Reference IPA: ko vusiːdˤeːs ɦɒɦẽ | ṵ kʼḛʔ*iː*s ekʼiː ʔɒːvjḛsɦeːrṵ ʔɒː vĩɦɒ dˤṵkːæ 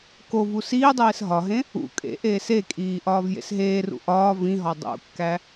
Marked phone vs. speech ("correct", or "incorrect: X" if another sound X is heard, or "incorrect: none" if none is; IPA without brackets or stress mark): incorrect: eː